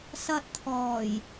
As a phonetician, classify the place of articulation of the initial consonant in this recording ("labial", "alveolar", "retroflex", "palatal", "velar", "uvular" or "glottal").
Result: alveolar